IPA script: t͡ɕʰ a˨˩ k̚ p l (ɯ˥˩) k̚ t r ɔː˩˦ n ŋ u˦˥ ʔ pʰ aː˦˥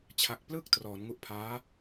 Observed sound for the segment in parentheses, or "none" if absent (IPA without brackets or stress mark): ɯ˥˩